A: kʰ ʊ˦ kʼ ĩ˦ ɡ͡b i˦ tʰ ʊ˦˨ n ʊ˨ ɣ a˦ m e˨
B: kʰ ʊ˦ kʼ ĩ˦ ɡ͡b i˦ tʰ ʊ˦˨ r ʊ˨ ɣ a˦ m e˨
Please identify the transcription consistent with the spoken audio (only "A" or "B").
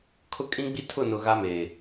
A